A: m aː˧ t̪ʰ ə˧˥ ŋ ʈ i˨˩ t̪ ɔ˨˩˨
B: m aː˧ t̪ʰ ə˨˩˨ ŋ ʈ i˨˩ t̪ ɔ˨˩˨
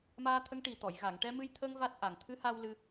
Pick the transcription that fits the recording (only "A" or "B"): A